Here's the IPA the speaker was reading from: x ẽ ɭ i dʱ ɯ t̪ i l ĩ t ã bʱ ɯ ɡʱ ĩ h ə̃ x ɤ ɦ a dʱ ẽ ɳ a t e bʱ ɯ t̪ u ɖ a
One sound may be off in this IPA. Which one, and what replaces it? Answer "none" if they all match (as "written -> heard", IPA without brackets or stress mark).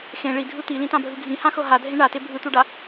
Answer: ə̃ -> ã